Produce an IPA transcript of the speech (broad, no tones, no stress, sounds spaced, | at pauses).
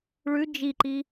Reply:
ɭ ʉ d͡ʒ i ǃ i